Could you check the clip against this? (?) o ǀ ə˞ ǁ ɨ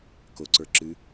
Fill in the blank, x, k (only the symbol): k